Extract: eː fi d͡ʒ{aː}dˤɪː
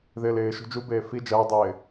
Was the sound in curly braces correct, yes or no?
no